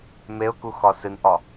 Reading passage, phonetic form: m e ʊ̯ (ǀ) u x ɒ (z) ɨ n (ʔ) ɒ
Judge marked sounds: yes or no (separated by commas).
no, no, yes